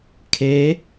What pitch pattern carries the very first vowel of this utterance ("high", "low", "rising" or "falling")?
rising